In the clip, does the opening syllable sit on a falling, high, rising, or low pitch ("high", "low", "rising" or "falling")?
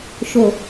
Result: low